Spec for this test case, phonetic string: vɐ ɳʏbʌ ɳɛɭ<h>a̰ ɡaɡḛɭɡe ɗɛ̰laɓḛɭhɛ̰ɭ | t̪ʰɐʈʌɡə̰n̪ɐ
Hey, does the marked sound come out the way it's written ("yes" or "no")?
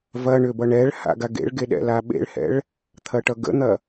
yes